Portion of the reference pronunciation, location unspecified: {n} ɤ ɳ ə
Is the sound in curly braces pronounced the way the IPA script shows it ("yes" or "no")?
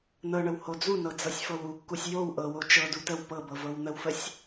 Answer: yes